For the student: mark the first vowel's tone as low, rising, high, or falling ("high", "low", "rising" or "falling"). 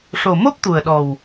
low